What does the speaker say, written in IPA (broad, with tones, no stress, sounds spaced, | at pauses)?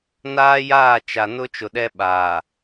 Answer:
n aː˦ j aː˦˨ t͡ʃ a˨ n ʊ˦ t͡ʃ ʊ˨ ɗ ɛ˦ ɓ aː˨